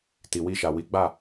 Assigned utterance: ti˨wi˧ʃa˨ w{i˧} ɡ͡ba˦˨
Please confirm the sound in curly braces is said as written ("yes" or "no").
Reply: no